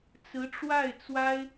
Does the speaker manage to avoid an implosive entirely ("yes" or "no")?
yes